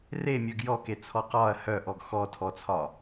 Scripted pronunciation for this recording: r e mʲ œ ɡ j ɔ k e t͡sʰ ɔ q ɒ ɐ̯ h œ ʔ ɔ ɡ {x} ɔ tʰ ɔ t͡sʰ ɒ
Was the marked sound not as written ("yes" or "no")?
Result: no